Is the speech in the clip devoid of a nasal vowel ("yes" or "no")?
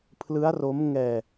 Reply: yes